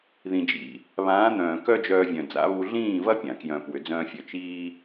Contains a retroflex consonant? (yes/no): no